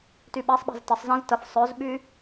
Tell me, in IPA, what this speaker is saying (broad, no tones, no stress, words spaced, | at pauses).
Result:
tyɓɛsˤɓa̤z təsˤ zə̃z təf sˤœzɓy